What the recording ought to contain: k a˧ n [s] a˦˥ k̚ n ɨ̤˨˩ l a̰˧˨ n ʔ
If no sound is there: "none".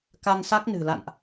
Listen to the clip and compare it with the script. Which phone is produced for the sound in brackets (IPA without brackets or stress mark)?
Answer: s